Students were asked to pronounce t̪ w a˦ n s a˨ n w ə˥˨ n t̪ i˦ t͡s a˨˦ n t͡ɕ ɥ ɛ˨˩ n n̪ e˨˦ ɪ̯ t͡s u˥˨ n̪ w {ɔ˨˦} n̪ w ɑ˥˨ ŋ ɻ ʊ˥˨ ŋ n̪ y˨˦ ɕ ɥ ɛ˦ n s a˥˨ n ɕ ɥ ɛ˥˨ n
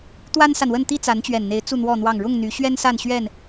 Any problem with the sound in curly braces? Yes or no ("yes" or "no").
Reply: yes